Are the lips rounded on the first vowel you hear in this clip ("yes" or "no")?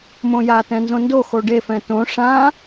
yes